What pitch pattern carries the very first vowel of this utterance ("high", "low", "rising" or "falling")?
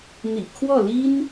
low